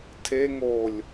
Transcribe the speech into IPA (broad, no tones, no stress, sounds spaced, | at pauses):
tʰ e ŋ o lʲ